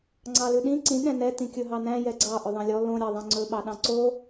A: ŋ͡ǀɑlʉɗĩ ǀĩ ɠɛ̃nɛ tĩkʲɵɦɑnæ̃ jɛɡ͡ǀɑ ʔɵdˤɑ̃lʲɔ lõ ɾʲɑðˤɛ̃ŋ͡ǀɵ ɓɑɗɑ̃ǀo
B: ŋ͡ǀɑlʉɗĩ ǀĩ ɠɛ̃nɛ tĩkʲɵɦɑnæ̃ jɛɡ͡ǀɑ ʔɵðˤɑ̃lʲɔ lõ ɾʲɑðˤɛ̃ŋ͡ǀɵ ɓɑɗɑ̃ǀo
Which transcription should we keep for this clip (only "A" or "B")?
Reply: B